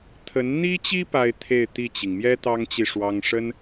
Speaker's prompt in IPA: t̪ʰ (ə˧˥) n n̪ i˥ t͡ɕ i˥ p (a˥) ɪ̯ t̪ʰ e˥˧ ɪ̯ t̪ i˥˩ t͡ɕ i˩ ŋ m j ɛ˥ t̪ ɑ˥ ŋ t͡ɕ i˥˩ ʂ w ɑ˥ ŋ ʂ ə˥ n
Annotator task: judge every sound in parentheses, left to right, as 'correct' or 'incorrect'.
correct, correct

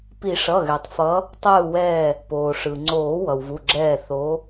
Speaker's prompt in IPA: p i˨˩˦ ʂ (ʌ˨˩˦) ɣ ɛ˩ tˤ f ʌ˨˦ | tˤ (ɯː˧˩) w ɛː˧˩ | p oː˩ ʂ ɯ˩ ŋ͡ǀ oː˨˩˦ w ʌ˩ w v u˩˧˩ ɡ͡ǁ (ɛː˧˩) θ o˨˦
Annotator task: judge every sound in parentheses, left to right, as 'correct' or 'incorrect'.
incorrect: ʌ˩˧˩, correct, correct

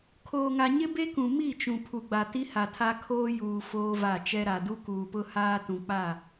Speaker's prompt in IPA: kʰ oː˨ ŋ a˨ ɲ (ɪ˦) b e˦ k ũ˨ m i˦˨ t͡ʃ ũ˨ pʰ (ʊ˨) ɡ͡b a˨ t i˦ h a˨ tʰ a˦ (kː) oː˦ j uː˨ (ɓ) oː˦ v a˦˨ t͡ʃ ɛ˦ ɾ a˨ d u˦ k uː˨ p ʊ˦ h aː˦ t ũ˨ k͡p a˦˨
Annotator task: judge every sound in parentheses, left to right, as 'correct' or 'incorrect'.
correct, incorrect: u˨, incorrect: kʰ, incorrect: f

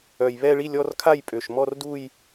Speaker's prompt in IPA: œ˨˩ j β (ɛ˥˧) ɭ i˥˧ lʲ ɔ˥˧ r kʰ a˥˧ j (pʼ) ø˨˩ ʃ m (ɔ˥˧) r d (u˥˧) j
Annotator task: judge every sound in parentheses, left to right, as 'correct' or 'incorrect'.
correct, correct, correct, correct

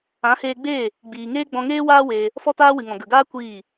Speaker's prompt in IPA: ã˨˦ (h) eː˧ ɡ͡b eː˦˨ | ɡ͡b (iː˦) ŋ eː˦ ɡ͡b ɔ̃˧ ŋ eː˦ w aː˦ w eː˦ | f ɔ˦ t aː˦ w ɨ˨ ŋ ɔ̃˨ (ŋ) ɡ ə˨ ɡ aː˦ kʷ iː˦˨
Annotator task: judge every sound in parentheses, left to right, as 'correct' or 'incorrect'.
correct, incorrect: iː˨, incorrect: none

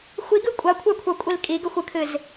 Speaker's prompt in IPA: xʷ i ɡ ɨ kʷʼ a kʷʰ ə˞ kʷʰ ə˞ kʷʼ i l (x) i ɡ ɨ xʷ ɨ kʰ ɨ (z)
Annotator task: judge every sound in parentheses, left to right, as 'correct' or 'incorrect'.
incorrect: kʼ, correct

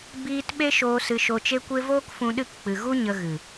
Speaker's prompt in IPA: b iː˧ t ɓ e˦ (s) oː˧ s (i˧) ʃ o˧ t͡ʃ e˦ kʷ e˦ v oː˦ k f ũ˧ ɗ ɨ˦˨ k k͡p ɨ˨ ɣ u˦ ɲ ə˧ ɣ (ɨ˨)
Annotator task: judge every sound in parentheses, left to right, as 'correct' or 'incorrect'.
incorrect: ʃ, incorrect: ɨ˧, correct

